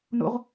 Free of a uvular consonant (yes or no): no